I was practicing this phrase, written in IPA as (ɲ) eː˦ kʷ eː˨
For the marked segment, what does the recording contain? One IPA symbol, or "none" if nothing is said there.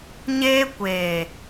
ɲ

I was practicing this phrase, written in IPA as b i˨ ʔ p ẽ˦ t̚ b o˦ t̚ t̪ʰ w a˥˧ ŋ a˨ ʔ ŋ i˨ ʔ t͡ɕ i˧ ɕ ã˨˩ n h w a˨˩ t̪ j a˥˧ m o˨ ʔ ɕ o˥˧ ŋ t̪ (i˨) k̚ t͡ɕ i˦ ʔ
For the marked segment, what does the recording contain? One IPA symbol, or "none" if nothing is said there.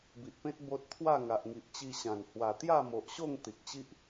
i˨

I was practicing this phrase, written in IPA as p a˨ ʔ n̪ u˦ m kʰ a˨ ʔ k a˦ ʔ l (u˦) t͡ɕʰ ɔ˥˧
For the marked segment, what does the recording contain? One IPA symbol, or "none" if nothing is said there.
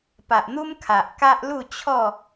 u˥˧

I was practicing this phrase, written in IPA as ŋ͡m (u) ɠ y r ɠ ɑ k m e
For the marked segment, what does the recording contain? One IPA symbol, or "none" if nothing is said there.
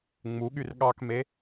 u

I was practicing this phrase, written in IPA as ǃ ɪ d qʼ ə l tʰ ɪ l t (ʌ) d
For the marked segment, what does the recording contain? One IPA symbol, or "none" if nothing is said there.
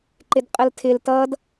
ʌ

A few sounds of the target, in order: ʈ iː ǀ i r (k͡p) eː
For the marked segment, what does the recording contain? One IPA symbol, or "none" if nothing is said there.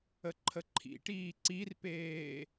p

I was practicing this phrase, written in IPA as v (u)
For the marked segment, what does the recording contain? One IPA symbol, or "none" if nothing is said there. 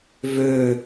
ø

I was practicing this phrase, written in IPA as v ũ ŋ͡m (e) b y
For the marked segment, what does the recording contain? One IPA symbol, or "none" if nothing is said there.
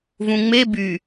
e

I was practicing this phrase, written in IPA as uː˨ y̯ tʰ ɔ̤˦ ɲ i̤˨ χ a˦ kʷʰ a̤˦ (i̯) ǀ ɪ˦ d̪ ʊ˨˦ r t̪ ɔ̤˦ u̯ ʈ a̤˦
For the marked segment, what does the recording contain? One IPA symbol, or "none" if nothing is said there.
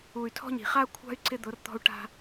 y̯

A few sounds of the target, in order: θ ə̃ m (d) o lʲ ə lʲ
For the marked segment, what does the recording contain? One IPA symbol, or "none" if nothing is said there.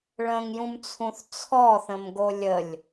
ɡ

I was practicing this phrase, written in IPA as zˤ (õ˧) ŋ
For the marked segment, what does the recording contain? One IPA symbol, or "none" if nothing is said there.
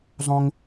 õ˧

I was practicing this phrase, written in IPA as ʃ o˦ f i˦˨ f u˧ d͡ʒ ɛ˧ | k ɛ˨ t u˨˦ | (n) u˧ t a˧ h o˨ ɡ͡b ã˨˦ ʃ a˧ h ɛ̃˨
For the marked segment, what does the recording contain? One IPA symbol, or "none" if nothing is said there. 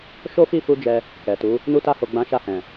n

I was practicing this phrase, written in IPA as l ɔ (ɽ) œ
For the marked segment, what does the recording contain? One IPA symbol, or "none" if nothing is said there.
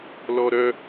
ɾ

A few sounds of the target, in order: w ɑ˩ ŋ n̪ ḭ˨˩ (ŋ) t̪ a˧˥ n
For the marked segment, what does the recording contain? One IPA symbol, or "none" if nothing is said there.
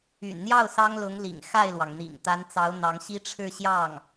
ŋ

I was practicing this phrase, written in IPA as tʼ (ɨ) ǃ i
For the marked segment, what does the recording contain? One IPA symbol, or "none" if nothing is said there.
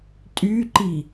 y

